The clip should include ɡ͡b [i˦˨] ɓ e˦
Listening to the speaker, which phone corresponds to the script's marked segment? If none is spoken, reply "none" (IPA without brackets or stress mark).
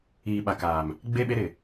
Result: e˦˨